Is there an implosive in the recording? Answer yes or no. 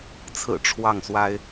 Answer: no